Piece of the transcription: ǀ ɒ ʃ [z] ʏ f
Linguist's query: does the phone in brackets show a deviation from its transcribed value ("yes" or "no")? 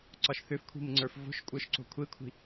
yes